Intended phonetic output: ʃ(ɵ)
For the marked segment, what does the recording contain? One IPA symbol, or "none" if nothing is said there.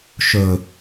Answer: ɵ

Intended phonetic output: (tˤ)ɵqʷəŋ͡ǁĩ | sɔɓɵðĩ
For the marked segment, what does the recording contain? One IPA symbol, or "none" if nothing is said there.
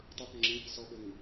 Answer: tˤ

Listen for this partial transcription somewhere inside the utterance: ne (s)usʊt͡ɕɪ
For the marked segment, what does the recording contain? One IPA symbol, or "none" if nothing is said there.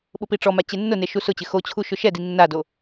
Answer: ʃ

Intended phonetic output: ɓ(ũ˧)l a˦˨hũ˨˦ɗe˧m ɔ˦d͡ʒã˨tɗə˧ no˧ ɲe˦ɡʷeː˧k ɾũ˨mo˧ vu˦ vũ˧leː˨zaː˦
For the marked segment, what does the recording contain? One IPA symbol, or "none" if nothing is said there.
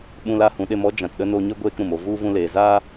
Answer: ũ˧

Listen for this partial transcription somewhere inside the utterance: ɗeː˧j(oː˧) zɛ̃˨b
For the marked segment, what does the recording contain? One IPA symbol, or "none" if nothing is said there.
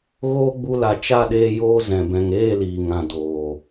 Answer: oː˧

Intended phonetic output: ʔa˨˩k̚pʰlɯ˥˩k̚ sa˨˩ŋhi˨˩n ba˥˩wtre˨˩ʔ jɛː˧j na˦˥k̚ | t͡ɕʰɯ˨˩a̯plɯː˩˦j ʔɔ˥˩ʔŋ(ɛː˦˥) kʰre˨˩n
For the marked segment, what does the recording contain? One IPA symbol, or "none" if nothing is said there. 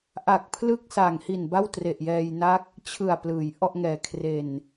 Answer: ɛː˨˩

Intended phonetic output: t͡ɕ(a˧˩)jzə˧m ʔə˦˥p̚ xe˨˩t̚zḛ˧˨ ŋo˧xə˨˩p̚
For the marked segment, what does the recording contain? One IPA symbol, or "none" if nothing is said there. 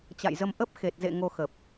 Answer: a̰˧˨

